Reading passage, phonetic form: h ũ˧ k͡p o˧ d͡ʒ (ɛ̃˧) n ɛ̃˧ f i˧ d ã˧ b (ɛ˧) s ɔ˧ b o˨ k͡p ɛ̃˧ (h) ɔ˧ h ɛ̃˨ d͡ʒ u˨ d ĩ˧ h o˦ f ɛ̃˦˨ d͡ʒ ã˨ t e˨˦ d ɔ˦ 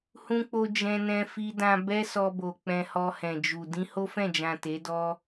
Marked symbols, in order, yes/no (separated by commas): yes, no, yes